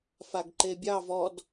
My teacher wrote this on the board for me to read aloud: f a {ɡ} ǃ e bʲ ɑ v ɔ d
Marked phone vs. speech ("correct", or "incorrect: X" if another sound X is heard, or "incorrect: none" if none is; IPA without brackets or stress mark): correct